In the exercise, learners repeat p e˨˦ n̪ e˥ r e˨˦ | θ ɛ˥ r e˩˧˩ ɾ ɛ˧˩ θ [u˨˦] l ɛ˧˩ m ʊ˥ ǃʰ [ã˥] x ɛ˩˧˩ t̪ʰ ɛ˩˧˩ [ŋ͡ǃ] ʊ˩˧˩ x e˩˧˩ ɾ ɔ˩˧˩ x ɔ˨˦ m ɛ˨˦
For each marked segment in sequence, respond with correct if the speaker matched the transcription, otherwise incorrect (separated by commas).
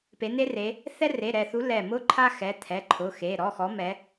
correct, incorrect, incorrect